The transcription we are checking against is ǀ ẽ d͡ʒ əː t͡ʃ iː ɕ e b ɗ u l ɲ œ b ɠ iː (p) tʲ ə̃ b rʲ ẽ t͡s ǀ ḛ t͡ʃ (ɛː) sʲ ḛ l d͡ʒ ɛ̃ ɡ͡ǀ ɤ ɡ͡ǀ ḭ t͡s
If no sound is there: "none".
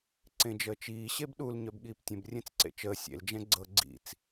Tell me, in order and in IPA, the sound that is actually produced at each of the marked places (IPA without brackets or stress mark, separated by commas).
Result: p, əː